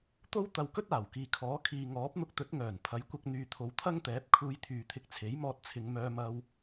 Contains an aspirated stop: yes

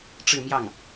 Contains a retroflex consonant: yes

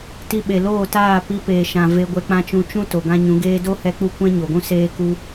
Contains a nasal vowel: yes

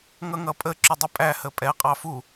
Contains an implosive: no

